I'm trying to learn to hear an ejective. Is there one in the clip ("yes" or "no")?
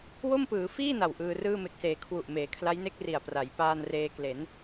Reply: no